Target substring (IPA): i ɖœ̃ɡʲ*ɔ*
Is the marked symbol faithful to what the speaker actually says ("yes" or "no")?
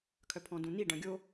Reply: no